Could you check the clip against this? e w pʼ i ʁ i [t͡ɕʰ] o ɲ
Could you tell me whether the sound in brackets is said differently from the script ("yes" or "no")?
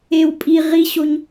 yes